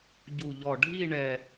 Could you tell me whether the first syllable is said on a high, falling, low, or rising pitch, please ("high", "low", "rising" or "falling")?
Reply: low